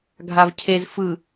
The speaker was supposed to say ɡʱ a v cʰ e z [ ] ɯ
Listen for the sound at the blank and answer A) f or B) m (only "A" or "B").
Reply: A